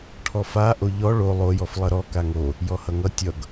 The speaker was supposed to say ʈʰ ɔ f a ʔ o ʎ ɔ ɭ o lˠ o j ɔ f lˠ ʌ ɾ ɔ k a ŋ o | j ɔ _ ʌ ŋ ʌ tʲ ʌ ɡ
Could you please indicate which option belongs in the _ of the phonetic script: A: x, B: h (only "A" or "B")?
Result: B